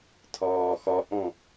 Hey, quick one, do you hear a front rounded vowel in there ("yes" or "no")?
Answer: no